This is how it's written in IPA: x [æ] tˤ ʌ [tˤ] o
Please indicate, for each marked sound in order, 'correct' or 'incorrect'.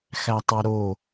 correct, incorrect

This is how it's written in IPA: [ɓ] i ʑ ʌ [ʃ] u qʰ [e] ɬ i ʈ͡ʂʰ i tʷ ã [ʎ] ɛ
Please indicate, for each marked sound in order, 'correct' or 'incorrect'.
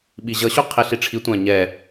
correct, incorrect, incorrect, incorrect

